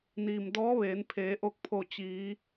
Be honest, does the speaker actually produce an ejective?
no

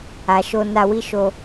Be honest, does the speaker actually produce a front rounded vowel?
no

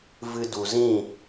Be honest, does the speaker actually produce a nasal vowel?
yes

